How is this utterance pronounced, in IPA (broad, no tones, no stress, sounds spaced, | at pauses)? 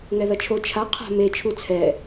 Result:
ŋ ɛ ð ɐ t͡ʃʰ o t͡ʃʰ a qʰ a̤ m e t͡ʃʰ u t͡sʰ ɛ